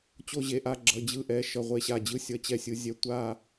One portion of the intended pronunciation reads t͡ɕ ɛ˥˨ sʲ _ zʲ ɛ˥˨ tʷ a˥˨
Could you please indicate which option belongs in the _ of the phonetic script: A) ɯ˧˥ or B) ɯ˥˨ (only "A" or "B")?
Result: A